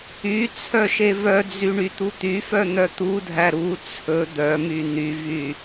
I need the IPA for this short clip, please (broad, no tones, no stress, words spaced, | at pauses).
y t͡sʰœʃevœd͡zy ɳyt̪ut̪yfœ n̪œt̪udʱæ ɾu t͡sʰɵ d̪œmy n̪yvy